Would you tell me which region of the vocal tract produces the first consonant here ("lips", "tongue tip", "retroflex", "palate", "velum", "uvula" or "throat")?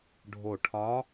retroflex